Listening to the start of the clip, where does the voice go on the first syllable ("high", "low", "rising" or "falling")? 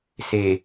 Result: low